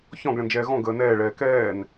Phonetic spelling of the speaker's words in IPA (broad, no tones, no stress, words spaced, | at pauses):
çɔ̃ɡɭə̃nd͡ʒɛː ɣɔ̃ ɡəːnɛːɭɛː kɛːn